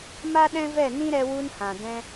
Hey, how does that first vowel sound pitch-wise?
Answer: high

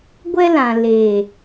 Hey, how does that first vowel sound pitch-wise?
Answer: high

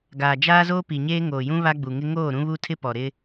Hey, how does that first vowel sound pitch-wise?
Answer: low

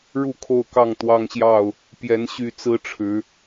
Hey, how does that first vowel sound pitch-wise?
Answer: falling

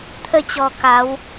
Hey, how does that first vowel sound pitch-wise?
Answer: falling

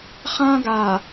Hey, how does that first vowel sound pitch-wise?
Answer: high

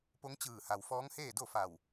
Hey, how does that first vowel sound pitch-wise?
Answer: rising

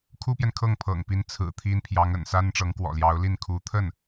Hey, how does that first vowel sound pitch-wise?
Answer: high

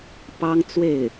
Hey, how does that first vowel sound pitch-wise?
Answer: high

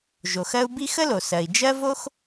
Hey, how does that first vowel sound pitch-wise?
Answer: low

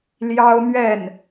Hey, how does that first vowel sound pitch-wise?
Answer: high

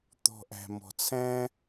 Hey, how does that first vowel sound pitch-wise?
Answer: low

